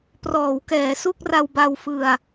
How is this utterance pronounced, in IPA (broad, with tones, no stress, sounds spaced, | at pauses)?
p r ɔː˩˦ w k ɛː˩˦ s u˥˩ k̚ r a˧ w b a˧ w f ɯ˧ a̯